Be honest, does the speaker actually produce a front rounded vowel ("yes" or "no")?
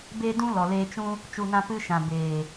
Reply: no